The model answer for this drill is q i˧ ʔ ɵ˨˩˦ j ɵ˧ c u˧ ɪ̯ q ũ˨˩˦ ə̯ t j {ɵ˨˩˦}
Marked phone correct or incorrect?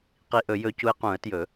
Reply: correct